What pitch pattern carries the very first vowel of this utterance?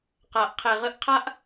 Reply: low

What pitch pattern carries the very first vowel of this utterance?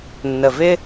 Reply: low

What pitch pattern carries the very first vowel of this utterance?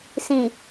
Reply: low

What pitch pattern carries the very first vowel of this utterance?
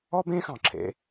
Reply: high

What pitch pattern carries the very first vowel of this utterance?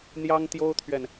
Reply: high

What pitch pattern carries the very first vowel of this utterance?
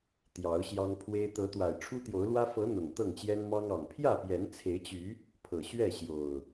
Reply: rising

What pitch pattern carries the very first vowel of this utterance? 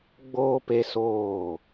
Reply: high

